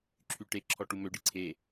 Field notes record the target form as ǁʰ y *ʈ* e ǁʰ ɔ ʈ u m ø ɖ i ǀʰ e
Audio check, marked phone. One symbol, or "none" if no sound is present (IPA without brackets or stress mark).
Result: ʈ